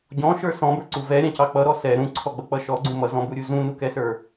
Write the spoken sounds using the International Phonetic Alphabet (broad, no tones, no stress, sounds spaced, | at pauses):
ɟ ɔ̃ ʃ ə˞ s ɔ̃ b ə˞ ǀ u v ɛ ɾʲ ɑ̃ c ɑ k͡p ʌ ɾ ɔ s ɛ ɾ ũ ǀʰ ɔ ɡ͡b ʌ k͡p ʌ ʃ ɔ ɡ͡ǀ ũ m ʌ z ɔ̃ b u ɾʲ u z ũ n u k ɛ s ə˞